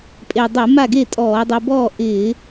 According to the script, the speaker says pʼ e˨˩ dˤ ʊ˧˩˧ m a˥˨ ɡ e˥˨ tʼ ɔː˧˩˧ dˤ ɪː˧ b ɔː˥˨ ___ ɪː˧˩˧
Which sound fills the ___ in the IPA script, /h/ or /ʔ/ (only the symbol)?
ʔ